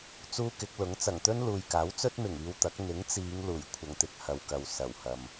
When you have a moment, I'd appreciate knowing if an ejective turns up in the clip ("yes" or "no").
no